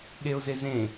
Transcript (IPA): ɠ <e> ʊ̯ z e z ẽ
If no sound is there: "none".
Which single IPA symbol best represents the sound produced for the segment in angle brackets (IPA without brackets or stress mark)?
e